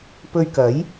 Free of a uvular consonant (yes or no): yes